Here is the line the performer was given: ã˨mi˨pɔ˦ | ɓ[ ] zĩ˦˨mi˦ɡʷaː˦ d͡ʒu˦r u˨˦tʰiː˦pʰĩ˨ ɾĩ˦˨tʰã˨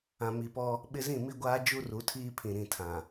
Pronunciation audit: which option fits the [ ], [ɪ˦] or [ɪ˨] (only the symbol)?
ɪ˦